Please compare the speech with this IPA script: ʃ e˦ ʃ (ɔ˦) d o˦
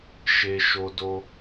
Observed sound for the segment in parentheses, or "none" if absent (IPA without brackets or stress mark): o˦